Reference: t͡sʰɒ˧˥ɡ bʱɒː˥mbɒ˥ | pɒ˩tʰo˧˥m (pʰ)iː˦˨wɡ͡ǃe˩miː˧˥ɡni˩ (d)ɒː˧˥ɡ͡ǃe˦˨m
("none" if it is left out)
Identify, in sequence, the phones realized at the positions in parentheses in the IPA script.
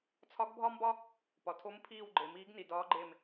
pʰ, d

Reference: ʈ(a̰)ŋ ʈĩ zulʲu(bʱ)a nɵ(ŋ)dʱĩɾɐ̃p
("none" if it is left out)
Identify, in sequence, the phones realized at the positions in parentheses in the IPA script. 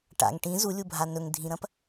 a̰, bʱ, ŋ

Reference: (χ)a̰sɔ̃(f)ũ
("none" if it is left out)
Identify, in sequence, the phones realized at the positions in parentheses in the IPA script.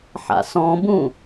ħ, b

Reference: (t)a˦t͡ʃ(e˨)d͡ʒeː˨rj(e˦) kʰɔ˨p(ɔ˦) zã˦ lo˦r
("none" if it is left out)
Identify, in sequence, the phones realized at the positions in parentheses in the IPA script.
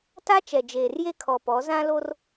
t, ɛ˨, e˦, ɔ˨˦

